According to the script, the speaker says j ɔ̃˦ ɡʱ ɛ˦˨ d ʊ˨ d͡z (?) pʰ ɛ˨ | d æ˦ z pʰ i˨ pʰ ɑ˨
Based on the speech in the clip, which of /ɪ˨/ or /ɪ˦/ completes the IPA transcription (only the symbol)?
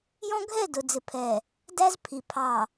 ɪ˨